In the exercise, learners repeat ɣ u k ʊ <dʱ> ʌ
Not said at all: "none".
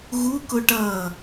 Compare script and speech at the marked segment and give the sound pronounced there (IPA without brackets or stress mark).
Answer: ʈ